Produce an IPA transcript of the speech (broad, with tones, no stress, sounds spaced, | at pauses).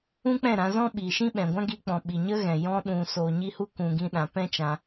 ũ˦ k͡p ɛ̃˦˨ ɾ ã˧ z ɔ̃˦ ɓ iː˨ ʃ ĩ˦ ɓ ɛ̃˨ ɡʷ ã˦ ɡ i˧ k͡p ɔ̃˨ ɓ i˨ ɲ ə˦ ɣ ɛ̃˨ j ɔ̃˧ ɗ ũ˨ s oː˨ ɲ i˧ h u˧ k ũ˨ ɡ ĩ˧ ɗ ã˨ p ɛ̃˦ t͡ʃ ã˧